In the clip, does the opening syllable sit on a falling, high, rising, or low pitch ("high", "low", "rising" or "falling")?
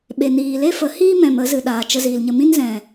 low